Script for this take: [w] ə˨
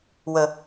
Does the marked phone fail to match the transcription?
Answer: no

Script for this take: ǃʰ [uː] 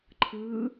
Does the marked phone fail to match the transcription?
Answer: yes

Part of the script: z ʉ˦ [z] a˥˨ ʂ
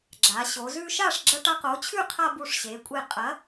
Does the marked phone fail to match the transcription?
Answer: yes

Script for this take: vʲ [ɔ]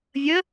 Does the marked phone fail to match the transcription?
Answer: yes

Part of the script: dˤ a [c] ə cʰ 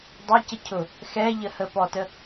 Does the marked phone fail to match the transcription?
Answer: no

